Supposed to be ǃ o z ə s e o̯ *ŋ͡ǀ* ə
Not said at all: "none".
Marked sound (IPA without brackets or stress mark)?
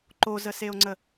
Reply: ŋ͡ǀ